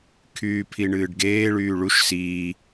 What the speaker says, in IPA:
kʰ yː pʰ i ɳ ɨː ɖ ɡ eː ɭ yː ɭ u ʃ s iː

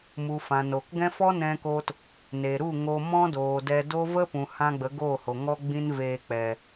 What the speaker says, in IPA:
m u˨ f ã˨ n o˨ k ɡ ɛ̃˦ f ɔ˦ n ɛ̃˧ k o˧ t | n e˨ ɾ u˦˨ ŋ o˧ m ɔ̃˦ d oː˨ d ɛ˧ d o˦ v ə˦ p ũ˨ h ã˧ ɡ͡b ə˨˦ ɡ oː˦˨ h o˨ ŋ ɔ˦ ɡ͡b ĩ˦ n v eː˧ k͡p ɛ˨

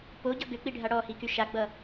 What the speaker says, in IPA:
p o ɟ ʌ ɡ ʏ k͡p i ɖʱ a ɽ ɔ h i k y ʃ a ɡ͡b ʌ

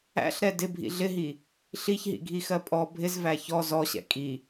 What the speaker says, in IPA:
æ̰ ɬ ɾ ɛ d ɪ bʱ ḭ ɮ ɪ ɦ i | ɬ i ç ɦ ḭ ɡʱ i x ɜ pʼ ɔ bʱ ɪ z v æ ç ɔ z ɔ ɕ ɛ̰ kʼ i

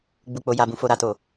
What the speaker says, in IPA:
ɡ͡b u˦ k͡p o˦ j a˦ b ũ˧ f o˦ ɾ a˦ t o˦˨

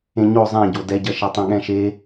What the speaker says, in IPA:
ẽ ɲ o zˤ ɛ̃ ɟ o d ɛ ɟ ɐ ʃ ɛ tˤ ĩ ɠ ɛ̃ ʃ e

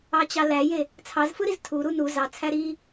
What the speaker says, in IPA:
ɑ t͡ɕ ɑ l æ j e | t͡sʰ ɑ z f ɯ ɾ i z tʰ u ɾ u n u z ɑ t͡sʰ æ ɾ i

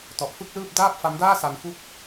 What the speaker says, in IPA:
t ɔ˨˩ ʔ f ɯ˥˩ k̚ l ɯː˥˩ p̚ d aː˥˩ p̚ f a˦˥ m d aː˥˩ s a˧ n f u˦˥ k̚

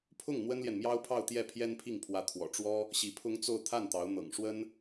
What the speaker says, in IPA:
pʰ ʊ˥˩ ŋ n̪ w ə˥ n l j ɛ˨ n m j ɑ˥ ʊ̯ pʰ ɑ˥˧ ʊ̯ t̪ j ɛ˥˩ pʰ j ɛ˥ n pʰ i˥˩ ŋ pʰ w ä˧˥ t̪ʰ w ɔ̰˨˩ ʈ͡ʂ w ɔ˥ | ɕ i˧˥ pʰ ʊ˥ ŋ t͡s o˥˧ ʊ̯ t̪ʰ a˥˩ n t̪ ɑ˧˥ ʊ̯ n̪ ɤ̰˨˩ ŋ ʂ w ə˥ n

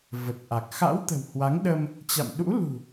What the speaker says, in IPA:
v ə˨˩ t̚ ʔ a˨˩ k̚ x a̰˧˥ w t̪ ə̤˨˩ w h w a˨˦ ŋ ɗ ə˧ m | t͡ɕ a̰˧˨ m ɗ ṵ˧˥ l ṳ˨˩

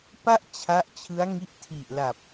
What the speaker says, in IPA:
p a˥˩ ʔ t͡ɕʰ a˦˥ ʔ t͡ɕʰ ɯ˦˥ a̯ ŋ i˦˥ ʔ tʰ i˨˩ ʔ l a˨˩ p̚

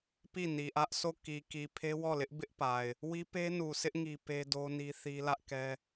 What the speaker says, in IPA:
p i˦˨ n i˨ ʔ ä˦ ʔ sʰ o˦˨ k i˨ k i˨ pʰ e˦ w ɔ˦˨ l ɪ˦ ʔ b ɪ˦ ʔ p a˨ ɪ̯ | w i˦ p e˦ n u˨ sʰ ɪ˦ ʔ ŋ i˦ p e˦ d o˦ n i˦ θ i˦ l ä˦ ʔ k ɛ˦

